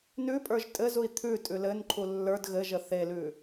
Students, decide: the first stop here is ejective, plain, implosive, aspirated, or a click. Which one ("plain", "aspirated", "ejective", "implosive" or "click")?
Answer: ejective